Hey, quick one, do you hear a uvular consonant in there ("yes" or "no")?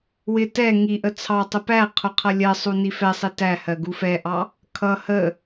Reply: yes